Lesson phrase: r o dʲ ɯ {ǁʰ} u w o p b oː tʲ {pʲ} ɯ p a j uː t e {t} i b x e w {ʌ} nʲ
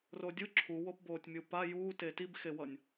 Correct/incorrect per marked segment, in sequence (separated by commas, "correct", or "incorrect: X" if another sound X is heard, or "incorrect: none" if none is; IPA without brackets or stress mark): correct, incorrect: mʲ, correct, correct